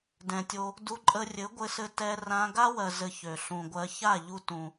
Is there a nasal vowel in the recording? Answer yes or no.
yes